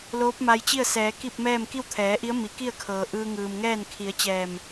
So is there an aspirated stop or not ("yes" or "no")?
yes